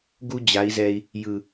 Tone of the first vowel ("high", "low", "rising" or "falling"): high